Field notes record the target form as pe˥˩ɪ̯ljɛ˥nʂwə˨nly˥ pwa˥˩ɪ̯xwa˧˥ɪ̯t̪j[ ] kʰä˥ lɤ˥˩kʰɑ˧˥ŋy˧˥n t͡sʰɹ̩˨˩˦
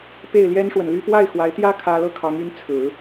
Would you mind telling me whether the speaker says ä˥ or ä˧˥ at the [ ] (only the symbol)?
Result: ä˥